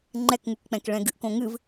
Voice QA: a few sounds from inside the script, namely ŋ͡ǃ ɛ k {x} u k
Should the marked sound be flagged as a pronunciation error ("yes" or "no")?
yes